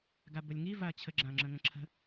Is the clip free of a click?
no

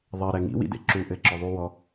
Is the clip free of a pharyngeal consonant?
yes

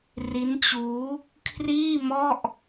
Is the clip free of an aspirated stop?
no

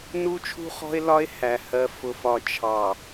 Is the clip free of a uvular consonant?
no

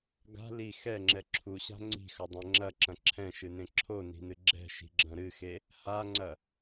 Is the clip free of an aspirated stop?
no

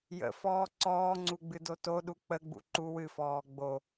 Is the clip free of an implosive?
no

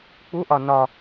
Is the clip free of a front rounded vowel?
yes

